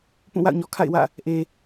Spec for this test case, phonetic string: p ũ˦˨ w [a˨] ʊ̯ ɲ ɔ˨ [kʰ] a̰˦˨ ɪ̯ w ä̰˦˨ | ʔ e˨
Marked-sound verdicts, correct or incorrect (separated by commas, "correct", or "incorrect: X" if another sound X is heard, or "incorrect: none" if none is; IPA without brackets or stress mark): incorrect: a̰˦˨, correct